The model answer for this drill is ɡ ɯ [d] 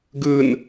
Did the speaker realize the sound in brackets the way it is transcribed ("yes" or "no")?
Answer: no